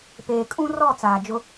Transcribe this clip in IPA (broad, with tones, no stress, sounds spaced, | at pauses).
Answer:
p eː˨ kʼ ũ˦ r ɔ˦˨ t͡s aː˨ d͡ʒ ʊ˦